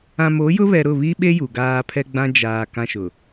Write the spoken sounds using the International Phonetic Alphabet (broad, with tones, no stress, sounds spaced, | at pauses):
ã˨ m o˨˦ j ʊ˦ β ɛ˨ ɾ ʊ˦˨ β i˦ ɓ e˦ j u˨ ɡ aː˦ pʰ ɛ˦ ɡ͡b ã˦ d͡ʒ aː˨ k ã˦ ʃ ʊ˨